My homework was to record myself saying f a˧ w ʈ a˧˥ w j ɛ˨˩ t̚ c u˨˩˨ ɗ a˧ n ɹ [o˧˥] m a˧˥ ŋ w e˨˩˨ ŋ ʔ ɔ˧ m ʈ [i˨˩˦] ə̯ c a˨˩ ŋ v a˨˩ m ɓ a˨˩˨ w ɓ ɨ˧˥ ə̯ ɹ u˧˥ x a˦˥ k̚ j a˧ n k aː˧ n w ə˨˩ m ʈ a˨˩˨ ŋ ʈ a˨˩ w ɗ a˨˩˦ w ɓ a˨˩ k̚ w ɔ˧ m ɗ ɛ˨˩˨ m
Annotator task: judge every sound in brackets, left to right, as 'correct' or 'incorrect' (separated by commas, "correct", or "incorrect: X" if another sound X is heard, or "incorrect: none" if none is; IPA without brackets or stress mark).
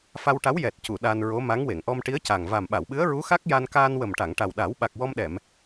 correct, incorrect: i˧˥